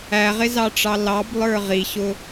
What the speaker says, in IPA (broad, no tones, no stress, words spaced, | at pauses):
æʁɪzɑʈ͡ʂɑ lɑblˠə˞ ʁiɕʊ